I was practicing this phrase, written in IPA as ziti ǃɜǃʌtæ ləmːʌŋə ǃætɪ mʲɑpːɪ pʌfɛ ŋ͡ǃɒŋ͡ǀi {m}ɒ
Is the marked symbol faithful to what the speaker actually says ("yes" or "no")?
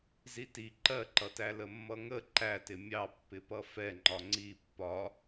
no